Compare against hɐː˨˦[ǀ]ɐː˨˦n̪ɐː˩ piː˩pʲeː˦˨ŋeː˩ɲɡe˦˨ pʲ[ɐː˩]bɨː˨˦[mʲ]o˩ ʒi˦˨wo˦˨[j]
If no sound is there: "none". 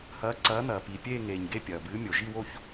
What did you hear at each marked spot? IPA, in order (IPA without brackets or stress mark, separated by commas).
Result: ǀ, ɐː˩, mʲ, ç